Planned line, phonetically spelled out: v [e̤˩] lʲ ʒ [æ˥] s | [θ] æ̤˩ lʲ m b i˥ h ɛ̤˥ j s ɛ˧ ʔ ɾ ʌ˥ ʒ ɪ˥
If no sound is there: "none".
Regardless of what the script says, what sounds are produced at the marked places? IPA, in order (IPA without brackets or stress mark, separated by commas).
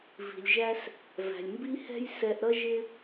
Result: i̤˩, æ˥, v